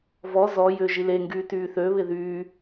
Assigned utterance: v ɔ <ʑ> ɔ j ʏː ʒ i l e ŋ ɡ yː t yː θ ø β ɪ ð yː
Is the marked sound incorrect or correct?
incorrect: z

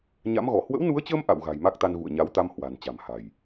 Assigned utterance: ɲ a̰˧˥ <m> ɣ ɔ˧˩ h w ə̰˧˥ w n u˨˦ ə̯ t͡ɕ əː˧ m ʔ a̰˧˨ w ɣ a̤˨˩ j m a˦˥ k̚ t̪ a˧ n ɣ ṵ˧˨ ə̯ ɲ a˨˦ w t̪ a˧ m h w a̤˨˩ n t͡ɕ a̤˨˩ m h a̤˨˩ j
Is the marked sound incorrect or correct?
correct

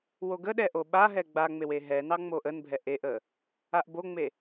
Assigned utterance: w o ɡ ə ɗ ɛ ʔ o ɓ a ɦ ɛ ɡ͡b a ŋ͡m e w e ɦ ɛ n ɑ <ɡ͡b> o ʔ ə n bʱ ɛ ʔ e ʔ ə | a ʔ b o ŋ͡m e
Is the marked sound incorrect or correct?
incorrect: ŋ͡m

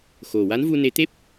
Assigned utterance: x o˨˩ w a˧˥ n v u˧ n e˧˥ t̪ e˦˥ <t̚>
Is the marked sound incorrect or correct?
incorrect: p̚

